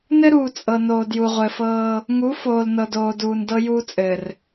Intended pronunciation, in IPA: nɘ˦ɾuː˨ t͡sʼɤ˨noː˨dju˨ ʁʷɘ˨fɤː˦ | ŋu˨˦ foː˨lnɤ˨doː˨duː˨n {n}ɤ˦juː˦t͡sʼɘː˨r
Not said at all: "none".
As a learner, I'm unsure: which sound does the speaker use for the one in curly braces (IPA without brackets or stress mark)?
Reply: d